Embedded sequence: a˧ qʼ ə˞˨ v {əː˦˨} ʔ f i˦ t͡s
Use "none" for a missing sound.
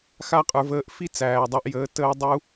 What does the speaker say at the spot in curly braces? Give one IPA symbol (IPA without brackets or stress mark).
əː˦˨